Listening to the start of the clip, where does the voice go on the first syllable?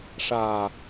low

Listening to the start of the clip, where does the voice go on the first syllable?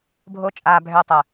high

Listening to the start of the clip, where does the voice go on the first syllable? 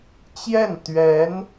falling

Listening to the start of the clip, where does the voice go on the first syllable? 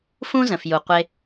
high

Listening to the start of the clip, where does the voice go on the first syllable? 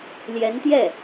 rising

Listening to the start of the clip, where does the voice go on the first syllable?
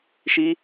high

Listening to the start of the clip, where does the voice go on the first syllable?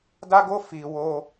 high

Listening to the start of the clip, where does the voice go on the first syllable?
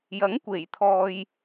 rising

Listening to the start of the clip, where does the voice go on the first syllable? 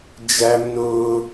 high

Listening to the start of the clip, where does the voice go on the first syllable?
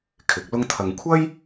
rising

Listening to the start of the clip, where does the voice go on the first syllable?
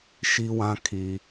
high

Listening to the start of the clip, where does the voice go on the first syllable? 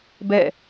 falling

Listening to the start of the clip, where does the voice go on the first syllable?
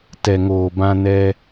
low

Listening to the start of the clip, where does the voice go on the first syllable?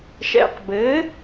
low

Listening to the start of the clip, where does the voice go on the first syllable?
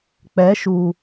rising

